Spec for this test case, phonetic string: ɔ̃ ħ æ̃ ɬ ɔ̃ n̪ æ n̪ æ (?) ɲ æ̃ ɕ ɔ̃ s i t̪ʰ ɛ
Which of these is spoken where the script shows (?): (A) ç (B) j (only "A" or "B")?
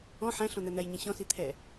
B